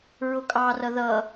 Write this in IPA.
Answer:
ɹ ʊ kʼ ɑ r ʌ ð ʌ

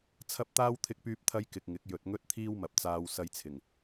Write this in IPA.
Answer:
t͡sʰ ɐ˥ p̚ t̪ aː˥ w t̪ʰ ɪ˥ k̚ p yː˥ p̚ t̪ʰ ɐ˥ j k ɪ˧ k̚ ŋ ɪ˨˥ k̚ j ɵ˨ t̚ ŋ ɵ˥ t̚ t̪ʰ iː˥ w m ɐ˨ p̚ t͡s aː˧ w s ɐ˧ j t͡sʰ ɪ˨˩ ŋ

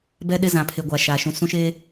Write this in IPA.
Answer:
b ɛ˦ ɗ ɪ˦ z ã˨ pʰ e˨ ɡʷ a˨ ʃ aː˨ ʃ ũ˨ s ũ˦ ʃ eː˦

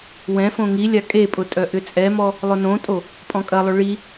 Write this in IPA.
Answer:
w ɛ̃ f õ ŋ i lʲ a kʼ e pʼ ʊ tʼ œ ʔ ʏ t͡sʼ ɛ m ɔ | lˠ ʊ n õ tʼ o | pʼ ɔ̃ kʼ ɐ lˠ ʏ ɭ i

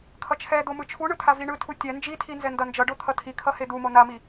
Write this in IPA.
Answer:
kʰ ʌ t͡ʃʰ ɛ d̪ o m ɯ t͡ʃʰ u ɳ ɯ t̪ʰ a v i ɳ ɯ tʰ u tʲ ɛ n d͡ʒ i tʰ i n z ɛ n d ʌ n d͡ʒ ʌ ɖ o t̪ʰ ʌ tʰ i kʰ ʌ h e d̪ u m o n a m i

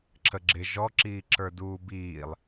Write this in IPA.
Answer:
ǁʰ ə ɡ͡ǁ ɪ ʒ ɔ ǁ iː ǁ ə˞ d uː b iː lˠ

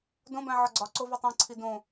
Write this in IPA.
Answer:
d õ b æ̃ ʕ ɒ ɡ͡ǀ ɒ ǀ o v u tˤ ẽ ǀʰ i d õ

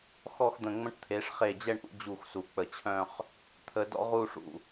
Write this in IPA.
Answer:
x ɔ˥˧ x d̪ ə̃˧˩ ŋ͡m ə̃˧ ʈ t̪ʰ e˩˧ ʂ χ e˧˩ d͡ʑ ɛ˥˧ ɳ ʔ ṵ˥˧ d͡ʑ u˧˩ x s u˩˧ k͡p ə˧˩ t͡ɕʰ œ̃˥˧ χ | t̪ʰ ə˧ d ɔ̰˥ ʁ u˥˧ ʂ ṵ˧

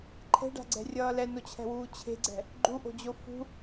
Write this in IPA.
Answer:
ǃʰ ɛ̤ ɖ a̤ ɡ͡ǀ ɛ̤ rʲ ʌː l ɛ n o t͡ɕʰ ɛ̤ w uː t͡ɕʰ e̤ ɡ͡ǀ ɛ̤ | ɡ͡ǃ u ʔ o̤ d͡ʑ o f ṳ

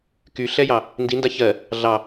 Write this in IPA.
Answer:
k y ɬ ɛ j ɑ | n d i n d a ç ɜ | ɮ ɑ

